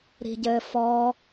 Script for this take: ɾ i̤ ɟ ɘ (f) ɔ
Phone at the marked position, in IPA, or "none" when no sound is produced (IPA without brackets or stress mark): f